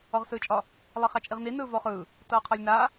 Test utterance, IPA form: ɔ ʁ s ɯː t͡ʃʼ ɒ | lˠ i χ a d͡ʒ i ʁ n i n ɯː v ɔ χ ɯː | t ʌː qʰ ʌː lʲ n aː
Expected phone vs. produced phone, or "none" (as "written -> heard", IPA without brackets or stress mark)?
d͡ʒ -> t͡ʃʼ